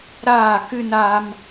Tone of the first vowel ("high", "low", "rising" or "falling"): falling